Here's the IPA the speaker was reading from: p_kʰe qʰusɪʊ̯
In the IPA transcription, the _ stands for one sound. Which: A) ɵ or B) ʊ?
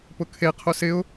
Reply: B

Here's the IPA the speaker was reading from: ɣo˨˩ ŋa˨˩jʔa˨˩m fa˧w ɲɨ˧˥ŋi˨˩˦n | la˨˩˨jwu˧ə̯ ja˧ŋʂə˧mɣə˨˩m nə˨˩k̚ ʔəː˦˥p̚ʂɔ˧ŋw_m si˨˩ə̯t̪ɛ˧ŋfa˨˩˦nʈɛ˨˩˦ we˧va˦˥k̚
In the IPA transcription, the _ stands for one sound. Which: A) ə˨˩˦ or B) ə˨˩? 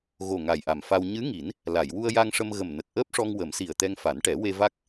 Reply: A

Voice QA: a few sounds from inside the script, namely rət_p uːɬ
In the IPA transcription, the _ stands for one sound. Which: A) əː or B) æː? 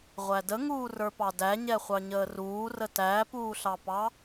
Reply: B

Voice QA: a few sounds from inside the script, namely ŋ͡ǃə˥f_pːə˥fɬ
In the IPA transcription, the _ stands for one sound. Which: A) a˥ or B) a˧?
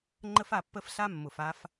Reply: B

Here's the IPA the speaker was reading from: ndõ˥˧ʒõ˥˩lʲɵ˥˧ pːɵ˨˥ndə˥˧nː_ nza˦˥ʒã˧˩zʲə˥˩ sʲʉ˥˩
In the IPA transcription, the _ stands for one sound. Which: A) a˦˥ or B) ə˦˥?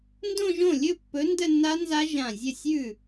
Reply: A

